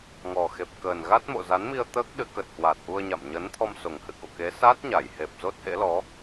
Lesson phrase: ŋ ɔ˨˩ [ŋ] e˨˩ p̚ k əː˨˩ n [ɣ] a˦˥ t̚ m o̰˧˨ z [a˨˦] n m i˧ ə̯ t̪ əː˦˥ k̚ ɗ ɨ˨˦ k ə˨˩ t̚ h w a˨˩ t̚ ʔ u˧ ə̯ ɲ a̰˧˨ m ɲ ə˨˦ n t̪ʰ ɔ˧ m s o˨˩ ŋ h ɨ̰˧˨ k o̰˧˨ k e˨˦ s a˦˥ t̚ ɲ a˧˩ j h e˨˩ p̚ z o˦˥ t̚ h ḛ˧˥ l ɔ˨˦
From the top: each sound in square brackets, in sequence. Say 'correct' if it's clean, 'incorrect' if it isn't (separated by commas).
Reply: incorrect, correct, correct